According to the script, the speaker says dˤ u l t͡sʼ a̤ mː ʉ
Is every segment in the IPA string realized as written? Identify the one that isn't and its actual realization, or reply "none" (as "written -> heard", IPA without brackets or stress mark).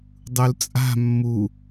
ʉ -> u